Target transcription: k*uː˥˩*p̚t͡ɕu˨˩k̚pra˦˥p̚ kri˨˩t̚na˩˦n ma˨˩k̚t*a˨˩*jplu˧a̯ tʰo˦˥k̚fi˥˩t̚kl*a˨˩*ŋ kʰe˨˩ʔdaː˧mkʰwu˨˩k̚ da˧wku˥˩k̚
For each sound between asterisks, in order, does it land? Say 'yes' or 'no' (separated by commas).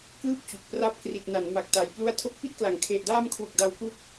no, yes, yes